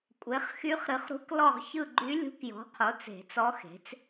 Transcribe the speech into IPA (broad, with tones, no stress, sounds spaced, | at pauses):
kʷʼ e˩˥ χ x y˧˥ χ ɾ ɨ˩˥ χ ɾ ṳ˧˥ k l ɔ˦˨ ʁ ç ɯ˦˨ ɡ͡ǃ y˧˥ lʲ ṳ˧˥ k j ɔ̤˩˥ qʰ o˩˥ t͡s e̤˨˩˦ t͡s ɔ˧˥ x e̤˩˥ t͡s